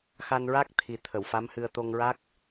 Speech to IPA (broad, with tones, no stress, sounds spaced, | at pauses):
x a˧ n ɹ a˦˥ k̚ t̪ʰ i˨˩ t̪ʰ ə˨˩˨ w f a˧˥ m h ɨ˧ ə̯ t̪ o˧ ŋ ɹ a˦˥ k̚